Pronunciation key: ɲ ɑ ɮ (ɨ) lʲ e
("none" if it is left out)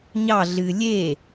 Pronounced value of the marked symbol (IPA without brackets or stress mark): ɨ